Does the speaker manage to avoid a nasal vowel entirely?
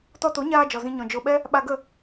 no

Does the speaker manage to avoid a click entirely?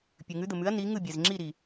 no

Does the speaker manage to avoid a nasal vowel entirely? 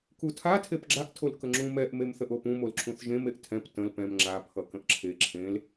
no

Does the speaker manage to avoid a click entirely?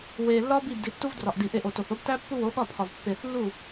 yes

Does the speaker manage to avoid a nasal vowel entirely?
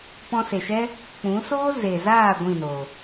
no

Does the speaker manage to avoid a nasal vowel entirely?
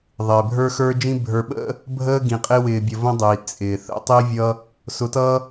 no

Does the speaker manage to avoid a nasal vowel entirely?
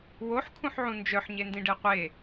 no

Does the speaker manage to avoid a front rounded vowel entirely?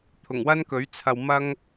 yes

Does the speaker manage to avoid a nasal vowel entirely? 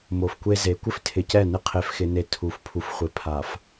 yes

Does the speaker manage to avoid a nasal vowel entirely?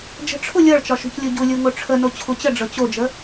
yes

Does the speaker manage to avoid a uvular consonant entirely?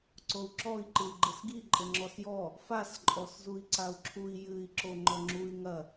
yes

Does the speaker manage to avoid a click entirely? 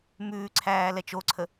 no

